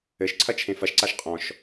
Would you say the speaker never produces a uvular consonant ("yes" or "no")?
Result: no